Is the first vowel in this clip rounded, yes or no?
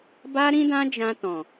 no